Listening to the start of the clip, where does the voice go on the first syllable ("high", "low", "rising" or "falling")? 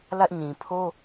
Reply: high